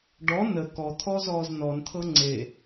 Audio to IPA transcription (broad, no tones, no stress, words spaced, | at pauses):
ɖɔ nə kɔt̪ʰɔ zɔːznɔnt̪ʰɤ ŋ͡ǀe